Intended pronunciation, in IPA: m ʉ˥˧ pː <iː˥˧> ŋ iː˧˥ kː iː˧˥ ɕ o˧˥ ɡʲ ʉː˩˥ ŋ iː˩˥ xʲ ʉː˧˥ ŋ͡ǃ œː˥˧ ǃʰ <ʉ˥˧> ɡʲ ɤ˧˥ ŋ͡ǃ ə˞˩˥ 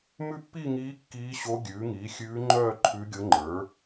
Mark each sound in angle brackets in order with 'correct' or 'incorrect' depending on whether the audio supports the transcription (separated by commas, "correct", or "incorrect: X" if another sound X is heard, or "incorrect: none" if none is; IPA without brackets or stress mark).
incorrect: i˥˧, incorrect: ʉ˧˥